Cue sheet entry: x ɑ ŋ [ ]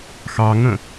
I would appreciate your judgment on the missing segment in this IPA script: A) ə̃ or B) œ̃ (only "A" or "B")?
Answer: A